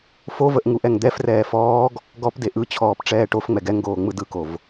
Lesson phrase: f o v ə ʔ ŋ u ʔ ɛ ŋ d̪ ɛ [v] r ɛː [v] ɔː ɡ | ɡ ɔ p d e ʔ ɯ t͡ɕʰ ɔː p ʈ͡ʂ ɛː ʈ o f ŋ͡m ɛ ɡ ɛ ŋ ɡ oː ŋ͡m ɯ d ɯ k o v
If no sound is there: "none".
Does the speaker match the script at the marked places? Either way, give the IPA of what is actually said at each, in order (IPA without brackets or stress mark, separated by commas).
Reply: f, f